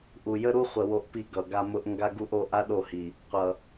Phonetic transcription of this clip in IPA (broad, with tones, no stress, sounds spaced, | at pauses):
ʔ u˨ j ə˦ ɾ u˦ χʷ ə˨ w o˦ ʔ p i˦ ɡ ʌ˨ ɡ a˦ m ʊ˦ ʔ ŋ ɡ a˦ ɡ u˦ ʔ o˨˦ ʔ a˦ ɗ o˦˨ h i˨ | qʷ ʌ˨